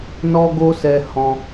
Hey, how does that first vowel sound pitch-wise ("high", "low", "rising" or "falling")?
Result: high